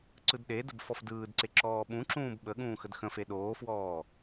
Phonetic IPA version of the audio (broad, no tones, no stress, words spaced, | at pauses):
ǀɯdɗedəb fɔfdɯːdǀe ǁɔːɓũǁũːb ɓə ɠũːxədxə̃fe ɗoːfwɔː